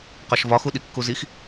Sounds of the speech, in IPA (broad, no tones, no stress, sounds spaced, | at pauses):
q ɒ ʃ v ɒ x u ɗ i kː u z i x